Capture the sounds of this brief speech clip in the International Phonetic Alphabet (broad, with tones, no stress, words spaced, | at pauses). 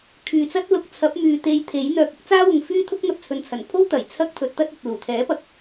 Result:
kʰyː˨t͡sɐ˥t̚ lʊ˨k̚t͡sʰɐ˨˥p̚ myː˨t̪e˧jt̪ʰe˨˥jn̪œː˧k̚ ʊ˥k̚t͡saː˥wʊ˨ŋ fyː˥t̪ʰʊ˥k̚ n̪ɐ˨p̚t͡sʰɵ˨nt͡sʰɐ˨˩npʰo˥w t̪ɐ˨˩jt͡sʰɐ˥k̚ t̪ʰɵ˨˥t̚t̪ɐ˥t̚ ɵ˨t̚luː˨˩ t̪ʰɛː˨˥pɐ˨k̚